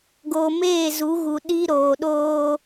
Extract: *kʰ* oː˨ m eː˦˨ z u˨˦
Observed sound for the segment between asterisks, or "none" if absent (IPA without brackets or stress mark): ɡ